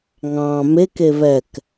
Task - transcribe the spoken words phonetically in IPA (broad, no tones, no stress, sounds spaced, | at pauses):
ŋ ɑ̃ m e k e β ɛ k